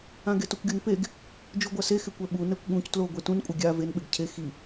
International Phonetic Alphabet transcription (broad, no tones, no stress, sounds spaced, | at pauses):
ã ɡ e t ʊ kʷ ɡʲ o n p e ɡ | d͡ʒ u ɡʷ a s e x ɪ kʷ ɛ ɓ u n ɛ kʷ ɠ ũ c t l o ɡʷ e t ũ n kʷʼ ɪ ɡʲ a v e n ɓ ɪ ɡ cʰ e x i